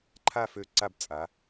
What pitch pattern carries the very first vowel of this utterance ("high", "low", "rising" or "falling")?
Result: falling